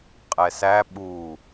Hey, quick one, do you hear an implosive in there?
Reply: yes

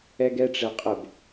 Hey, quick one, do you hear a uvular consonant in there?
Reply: yes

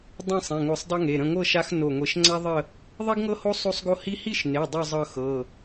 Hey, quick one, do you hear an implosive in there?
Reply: no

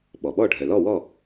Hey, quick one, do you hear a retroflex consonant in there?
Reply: yes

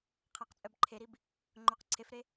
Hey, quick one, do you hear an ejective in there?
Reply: yes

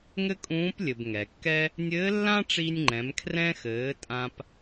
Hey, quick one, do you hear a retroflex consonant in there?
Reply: yes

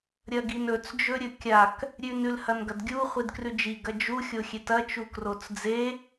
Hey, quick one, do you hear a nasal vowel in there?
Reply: no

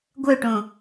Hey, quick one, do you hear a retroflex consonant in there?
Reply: yes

